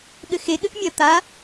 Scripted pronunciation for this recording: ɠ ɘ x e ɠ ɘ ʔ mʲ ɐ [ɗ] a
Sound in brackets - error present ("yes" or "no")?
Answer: yes